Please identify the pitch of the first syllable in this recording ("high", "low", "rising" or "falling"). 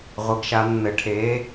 rising